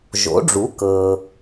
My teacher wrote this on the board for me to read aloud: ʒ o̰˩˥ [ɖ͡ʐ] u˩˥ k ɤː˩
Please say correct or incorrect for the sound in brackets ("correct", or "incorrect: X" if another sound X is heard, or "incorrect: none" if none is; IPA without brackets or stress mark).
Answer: correct